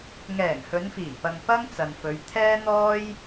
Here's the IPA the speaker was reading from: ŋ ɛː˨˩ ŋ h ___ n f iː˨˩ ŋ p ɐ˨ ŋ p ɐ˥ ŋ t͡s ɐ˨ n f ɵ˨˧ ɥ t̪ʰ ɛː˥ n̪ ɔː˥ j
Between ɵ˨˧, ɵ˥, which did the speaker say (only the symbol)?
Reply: ɵ˨˧